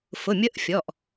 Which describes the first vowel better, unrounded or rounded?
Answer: rounded